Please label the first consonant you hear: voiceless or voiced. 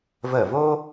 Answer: voiced